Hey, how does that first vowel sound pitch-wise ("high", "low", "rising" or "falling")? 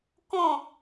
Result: falling